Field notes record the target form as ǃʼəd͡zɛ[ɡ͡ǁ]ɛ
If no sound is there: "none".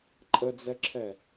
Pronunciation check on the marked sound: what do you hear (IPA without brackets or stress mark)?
ǁʰ